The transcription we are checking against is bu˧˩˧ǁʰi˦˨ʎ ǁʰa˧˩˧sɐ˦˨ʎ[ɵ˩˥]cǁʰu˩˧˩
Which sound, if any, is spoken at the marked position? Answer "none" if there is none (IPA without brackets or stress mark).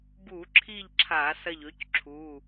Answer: ɵ˩˥